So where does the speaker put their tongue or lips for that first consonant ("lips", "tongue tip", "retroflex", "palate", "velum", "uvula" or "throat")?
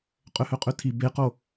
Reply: uvula